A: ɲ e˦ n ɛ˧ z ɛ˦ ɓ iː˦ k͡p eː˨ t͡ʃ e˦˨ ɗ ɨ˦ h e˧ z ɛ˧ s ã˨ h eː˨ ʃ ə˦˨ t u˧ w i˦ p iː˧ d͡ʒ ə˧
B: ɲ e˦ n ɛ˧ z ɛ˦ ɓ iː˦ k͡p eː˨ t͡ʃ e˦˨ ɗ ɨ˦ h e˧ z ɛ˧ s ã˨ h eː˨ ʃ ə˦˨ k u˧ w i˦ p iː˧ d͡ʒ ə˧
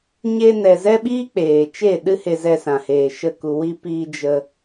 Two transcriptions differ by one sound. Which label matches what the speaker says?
B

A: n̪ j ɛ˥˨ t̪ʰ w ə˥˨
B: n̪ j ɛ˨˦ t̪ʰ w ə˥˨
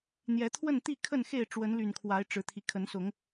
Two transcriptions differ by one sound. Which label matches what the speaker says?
B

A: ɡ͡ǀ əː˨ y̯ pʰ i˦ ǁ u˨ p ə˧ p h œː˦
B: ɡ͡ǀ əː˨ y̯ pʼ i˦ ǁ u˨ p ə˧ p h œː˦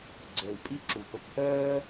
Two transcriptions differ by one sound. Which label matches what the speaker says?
B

